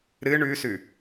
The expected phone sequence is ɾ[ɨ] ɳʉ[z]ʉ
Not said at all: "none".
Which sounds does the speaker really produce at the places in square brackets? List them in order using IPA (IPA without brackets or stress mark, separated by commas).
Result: ɨ, s